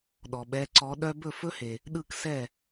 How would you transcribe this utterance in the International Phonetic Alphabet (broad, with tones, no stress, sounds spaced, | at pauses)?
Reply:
ɗ ɔ˩ ɓ ɛ˨˦ ǀ ɔ˨˦ ɗ œ˥ b ɵ˥˩ f ɵ˥ h e˩ | ɗ ɯ˥˩ k s ɛ˥˩